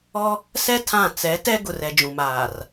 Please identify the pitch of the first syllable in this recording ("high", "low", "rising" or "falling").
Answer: high